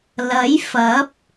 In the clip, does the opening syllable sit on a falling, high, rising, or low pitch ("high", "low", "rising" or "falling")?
rising